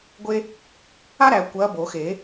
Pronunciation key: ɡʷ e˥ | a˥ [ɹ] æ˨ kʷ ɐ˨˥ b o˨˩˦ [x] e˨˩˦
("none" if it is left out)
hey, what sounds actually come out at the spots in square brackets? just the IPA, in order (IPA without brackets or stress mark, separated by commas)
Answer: ɾ, x